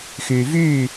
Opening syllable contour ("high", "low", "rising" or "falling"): low